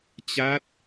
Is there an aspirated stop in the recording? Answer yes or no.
no